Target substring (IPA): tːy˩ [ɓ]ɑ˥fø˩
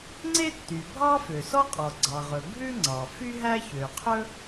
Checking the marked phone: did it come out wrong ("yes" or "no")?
yes